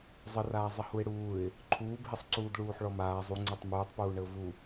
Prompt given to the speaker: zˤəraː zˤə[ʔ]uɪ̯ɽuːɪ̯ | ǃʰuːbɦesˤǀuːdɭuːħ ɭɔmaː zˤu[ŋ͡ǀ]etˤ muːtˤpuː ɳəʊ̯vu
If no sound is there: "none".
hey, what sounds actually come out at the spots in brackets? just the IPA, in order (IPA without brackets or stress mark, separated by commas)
h, ŋ͡ǀ